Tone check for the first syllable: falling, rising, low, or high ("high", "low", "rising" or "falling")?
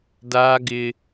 high